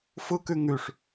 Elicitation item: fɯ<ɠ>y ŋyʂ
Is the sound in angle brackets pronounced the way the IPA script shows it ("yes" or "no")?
no